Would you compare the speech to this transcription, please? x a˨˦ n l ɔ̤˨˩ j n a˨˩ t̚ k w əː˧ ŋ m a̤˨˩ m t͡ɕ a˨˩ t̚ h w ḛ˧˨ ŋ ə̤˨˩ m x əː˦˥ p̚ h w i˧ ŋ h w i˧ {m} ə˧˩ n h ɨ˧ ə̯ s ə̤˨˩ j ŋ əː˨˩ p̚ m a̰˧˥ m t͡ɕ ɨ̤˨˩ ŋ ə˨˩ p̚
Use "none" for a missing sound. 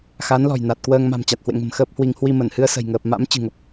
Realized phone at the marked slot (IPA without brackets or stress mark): m